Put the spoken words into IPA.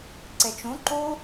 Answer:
ǀ e t͡ʃ ũ ǃ u

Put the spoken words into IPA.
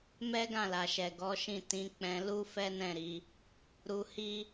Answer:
m ɛ˦ ɡ ã˦˨ l a˨ ʃ ɛ˨ ɡ ɔ˨˦ ʃ ĩ˦˨ t ĩ˨˦ k͡p ɛ̃˧ l u˦ f ɛ˦ n ɛ̃˦˨ ɾ i˨˦ | ɾ u˧ h i˦

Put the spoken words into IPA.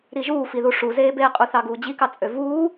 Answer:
ɾ i ʒ uː f i ð u ʂ u z eː b eː qʼ u θ ɑ ɡ uː d͡ʑ i k ɑ t͡sʼ ø v uː

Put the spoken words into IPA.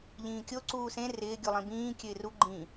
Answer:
ʎ ĩː kʲ o ǀ uː s ẽ r ɪː ɡʲ u lˠ ĩ b ĩː kʲ ø ɪ̯ r u ɡ͡ǃ ĩ

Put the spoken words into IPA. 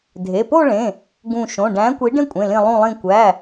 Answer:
dʱ e˩˧˩ p o˥˧ ɭ ẽ˩˧˩ | ɡ ũ˧˩ ʃ õ˩˧˩ ɖ æ̃˨˥ kʷ i˨˥ ɖ ẽ˥˧ kʷʼ ẽ˩˧˩ l ĩ˧˩ lˠ ũ˧˩ lˠ ĩ˧˩ kʷ æ˩˧˩

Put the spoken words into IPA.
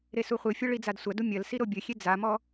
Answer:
ɾ e s u χʷ ɨ fʲ ɐ ɭ i d͡z a d sʷ ɐ d u mʲ ɐ l s i ɾ o bʲ ɘ xʲ e d͡z a m ɔ

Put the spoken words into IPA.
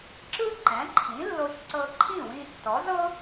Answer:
ǁ ɯ˥ ǃ ɛ̃˩˥ ǃʰ ĩ˩˥ lː o˧ ç ǀ ɤ˧ ǃʰ ĩ˥˩ w ĩ˧ tː ɔ˩˥ z ɤ˥

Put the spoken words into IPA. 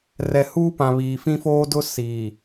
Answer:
r ɛ˨ h uː˦ p ã˨ β iː˨ f ĩ˦ f oː˦ d ʊ˦ s iː˨

